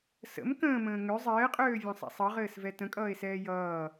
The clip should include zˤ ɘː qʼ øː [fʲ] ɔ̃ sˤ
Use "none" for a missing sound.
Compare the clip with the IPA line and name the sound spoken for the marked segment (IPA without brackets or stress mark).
vʲ